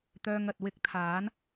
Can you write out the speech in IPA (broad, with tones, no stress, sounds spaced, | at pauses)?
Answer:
t̪ œː˧ ŋ ɐ˨ t̚ w ɪ˥ k̚ t̪ʰ aː˨˥ n